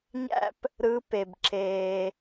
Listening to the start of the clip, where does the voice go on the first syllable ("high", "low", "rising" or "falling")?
high